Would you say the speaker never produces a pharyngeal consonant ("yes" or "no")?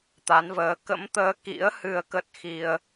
yes